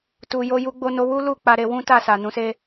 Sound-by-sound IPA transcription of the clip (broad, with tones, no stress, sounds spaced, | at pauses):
t u˧ j o˦ j u˧ ɡ͡b o˧ n o˧ w u˦ l u˦˨ k͡p a˨˦ ɾ e˧ w ũ˦ t a˦˨ s a˨ n ũ˨˦ s e˦